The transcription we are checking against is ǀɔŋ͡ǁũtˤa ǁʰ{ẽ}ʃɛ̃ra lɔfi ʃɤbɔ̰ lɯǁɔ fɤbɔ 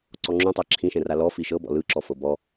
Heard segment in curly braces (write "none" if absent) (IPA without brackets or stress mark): ĩ